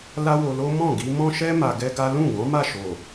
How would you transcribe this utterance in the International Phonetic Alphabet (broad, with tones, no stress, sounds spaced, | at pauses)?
l a˦ w o˧ l o˦ m ɔ̃˦˨ ɡ i˧ m ɔ̃˦ ʃ ɛ˦ m a˧ ɡ ɛ˦ ɡ a˦ l ũ˦˨ ɡ ɔ̃˨˦ m a˦˨ ʃ o˨